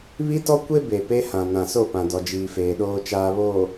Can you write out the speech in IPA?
β i˦ t ɔ˦ kʷ e˦ b e˨ p e˦ h ã˨ n ã˨ s o˦˨ p ã˨ d ɔ˨ d͡ʒ iː˨ f eː˨ ɗ oː˨ t͡ʃ aː˨ β oː˨

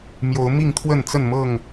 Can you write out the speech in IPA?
m j o˨˦ ʊ̯ m i˥˨ ŋ t̪ʰ w ə˥˨ n t͡s ə˥˨ n m ɤ˥˨ ŋ

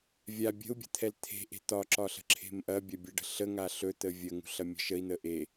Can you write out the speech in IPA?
vʲ a bʲ ə̤ u̯ bʲ ə̤ t̪ʰ ɛ l t̪ʰ e̤ ʔ e̤ t̪ ɒ ǁ ɒ ɬ ə̤ ǁʰ e̤ m ʔ ɐ bʲ ɐ bʲ ɛ ɖ ə̤ ɬ ə ŋ a ɬ ɵ t̪ ə vʲ ə ŋ ṳ ɬ ɐ mʲ ə̤ ʃ ə i̯ n̪ ə ʔ e

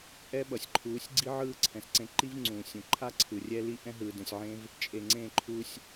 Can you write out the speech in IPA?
ʔ ɛ˦ ɓ ʌ˨ sʲ ǃʰ uː˨˦ sʲ ɡ͡ǀ i˦ ʕ ɯː˦˨ ǀʰ ɛ̃˨ s ǀ ẽ˧ ǃ i˦ v ŋ͡ǀ ũː˨ sʲ ũ˨ ǃʰ a˦ ǀʰ ɯ˨ rʲ ɛ˦ l i˦ ʔ ɛ̃˦ ɦ ɯː˨ d ɛ̃˨ sʲ ʕ ẽ˦ v | t͡ʃʼ e˨ ŋ͡ǀ ẽː˦˨ ǃʰ uː˧ sʲ

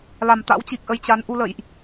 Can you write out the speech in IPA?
l a˨˩ m t̪ a̰˧˥ w t͡ɕ i˨˩ k̚ ʔ ə˨˦ j t͡ɕ a˨˦ n ʔ u˧ l ə̰˧˨ j ʔ

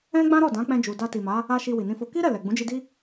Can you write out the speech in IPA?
ɛ̃˦ ɡ͡b ã˦ ɾ ɔ˦˨ d ã˨˦ k͡p ɛ̃˧ d͡ʒ u˨ d a˧ t i˨ m a˨˦ | a˦ ʃ i˧ w i˨ n ĩ˧ f o˧ k i˦ ɾ ɛ˦˨ l ɛ˨ ɡ͡b ũ˨˦ d͡ʒ i˧ d i˦

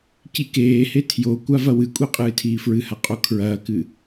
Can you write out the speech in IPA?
c i k eː h e tʰ j o kʷ a v ɐ w ɨ kʷʼ i qʼ ɨː tʰ iː f ɹ ɨ h a qʼ o kʰ ɹ ɐː k ɨ

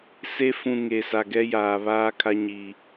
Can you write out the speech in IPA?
s e˦ f ũ˨ ŋ e˨ s a˨ ɡ ɛ˦ j aː˨ β aː˦ kʰ a˦ ɲ iː˨

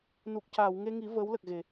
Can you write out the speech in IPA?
n u˨˩ k̚ c aː˨˩˨ w ŋ e˧ ŋ i˨˩˦ v əː˧˥ w l ə˨˩ k̚ ɣ e˨˩˨

